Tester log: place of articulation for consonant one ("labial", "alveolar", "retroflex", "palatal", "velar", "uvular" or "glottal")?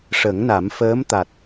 retroflex